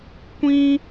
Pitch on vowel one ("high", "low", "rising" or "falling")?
high